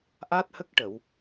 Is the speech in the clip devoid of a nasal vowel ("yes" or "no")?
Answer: yes